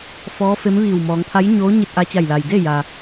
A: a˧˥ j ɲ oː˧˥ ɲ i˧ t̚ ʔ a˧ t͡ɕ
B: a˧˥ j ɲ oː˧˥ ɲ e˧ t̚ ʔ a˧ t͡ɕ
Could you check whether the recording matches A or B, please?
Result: A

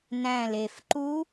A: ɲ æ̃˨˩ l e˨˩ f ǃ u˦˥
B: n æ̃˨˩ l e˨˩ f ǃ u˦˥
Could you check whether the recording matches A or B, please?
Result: B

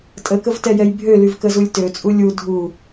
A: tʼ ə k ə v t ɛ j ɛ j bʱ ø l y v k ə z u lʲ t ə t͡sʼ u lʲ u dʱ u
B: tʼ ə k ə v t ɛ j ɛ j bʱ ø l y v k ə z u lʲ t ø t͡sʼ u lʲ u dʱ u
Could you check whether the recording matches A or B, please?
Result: B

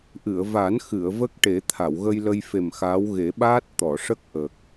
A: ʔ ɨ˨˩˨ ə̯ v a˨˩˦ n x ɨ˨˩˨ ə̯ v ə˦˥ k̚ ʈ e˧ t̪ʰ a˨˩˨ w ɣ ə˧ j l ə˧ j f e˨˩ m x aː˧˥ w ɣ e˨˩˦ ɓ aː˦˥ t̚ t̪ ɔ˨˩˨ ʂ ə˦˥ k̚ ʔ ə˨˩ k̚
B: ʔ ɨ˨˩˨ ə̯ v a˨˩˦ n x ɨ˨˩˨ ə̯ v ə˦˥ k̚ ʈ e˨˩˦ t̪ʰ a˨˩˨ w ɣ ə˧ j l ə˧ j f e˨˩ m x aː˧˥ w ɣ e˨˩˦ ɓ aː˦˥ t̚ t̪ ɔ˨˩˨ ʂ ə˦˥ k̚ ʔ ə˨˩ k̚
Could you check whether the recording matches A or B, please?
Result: B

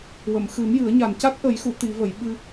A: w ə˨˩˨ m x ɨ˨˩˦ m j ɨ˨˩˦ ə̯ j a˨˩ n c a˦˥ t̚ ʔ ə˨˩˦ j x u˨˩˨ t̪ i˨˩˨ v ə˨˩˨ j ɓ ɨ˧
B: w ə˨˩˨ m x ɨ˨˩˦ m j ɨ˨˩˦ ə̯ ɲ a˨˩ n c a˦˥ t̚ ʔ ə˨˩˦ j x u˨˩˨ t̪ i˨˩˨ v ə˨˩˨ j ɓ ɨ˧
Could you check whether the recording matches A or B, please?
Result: B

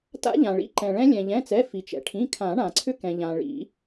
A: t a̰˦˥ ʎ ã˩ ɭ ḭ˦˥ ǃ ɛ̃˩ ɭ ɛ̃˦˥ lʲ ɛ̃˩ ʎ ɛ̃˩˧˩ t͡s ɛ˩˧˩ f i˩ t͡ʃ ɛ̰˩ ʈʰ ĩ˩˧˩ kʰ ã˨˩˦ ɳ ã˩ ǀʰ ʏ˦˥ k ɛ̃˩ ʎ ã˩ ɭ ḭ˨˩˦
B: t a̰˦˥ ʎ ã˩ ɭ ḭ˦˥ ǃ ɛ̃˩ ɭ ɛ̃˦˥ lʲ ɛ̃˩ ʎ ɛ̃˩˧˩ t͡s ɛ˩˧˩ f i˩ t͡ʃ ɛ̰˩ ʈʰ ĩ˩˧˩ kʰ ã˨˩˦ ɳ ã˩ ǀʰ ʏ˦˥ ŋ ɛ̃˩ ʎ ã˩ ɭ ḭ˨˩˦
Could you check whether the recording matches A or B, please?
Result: A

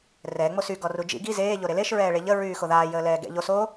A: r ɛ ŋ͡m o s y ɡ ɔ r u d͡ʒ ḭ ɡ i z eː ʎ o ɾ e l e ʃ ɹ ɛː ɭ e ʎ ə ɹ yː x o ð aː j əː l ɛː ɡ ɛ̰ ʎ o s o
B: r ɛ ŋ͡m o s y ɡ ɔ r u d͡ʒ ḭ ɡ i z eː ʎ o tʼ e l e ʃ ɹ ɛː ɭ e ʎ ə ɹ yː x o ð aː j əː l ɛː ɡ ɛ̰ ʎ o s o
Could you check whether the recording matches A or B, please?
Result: A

